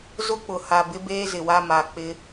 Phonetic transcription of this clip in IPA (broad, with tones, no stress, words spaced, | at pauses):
zʊ˦k͡pʊ˨ ha˨bɪ˦beː˦ zɪ˨wa˦ma˨k͡pɪ˦